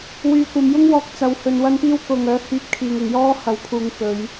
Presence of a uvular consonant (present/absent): absent